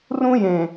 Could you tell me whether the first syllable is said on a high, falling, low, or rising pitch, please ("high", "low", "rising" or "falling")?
high